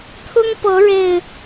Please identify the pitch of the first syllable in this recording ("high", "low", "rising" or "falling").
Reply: high